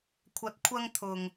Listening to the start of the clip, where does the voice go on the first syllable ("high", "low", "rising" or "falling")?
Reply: rising